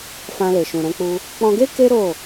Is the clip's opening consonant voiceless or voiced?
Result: voiceless